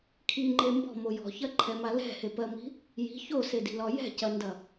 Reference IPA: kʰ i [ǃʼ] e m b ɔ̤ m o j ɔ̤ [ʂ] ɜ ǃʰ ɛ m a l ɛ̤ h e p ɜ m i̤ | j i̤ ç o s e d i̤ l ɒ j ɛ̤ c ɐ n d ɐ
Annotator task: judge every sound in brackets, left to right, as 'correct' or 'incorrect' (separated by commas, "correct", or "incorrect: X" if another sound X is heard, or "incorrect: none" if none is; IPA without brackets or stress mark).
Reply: incorrect: ŋ͡ǃ, incorrect: ç